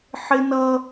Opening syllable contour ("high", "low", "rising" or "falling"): high